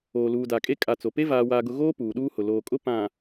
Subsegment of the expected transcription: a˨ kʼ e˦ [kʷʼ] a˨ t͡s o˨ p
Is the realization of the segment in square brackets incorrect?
yes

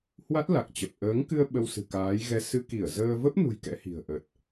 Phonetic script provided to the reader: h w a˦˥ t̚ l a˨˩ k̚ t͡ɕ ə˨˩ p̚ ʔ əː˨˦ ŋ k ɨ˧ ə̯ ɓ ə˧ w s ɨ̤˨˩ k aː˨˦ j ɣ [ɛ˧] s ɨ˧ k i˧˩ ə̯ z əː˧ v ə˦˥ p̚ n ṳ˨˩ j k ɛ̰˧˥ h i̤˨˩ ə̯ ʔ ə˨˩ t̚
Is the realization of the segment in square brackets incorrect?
no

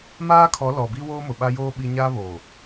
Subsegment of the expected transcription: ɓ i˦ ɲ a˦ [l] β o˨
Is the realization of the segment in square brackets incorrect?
yes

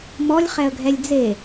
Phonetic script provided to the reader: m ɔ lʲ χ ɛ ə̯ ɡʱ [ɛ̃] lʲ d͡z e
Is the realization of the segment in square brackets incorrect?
yes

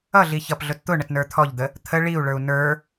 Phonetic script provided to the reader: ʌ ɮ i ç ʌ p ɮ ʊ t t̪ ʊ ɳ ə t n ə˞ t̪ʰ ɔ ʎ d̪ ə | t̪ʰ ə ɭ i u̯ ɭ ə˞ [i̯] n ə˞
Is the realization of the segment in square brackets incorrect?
yes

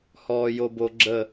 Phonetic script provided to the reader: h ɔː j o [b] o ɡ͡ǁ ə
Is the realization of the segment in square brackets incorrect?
no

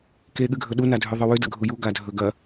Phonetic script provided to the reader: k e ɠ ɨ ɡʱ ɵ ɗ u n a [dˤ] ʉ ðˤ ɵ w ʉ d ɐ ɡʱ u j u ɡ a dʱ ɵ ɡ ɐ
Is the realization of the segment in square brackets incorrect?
yes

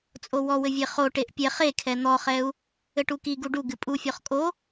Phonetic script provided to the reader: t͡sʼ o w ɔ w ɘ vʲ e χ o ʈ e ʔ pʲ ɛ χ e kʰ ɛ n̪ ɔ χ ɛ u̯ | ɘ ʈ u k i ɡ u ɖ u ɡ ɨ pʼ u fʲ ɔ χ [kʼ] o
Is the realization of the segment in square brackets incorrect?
no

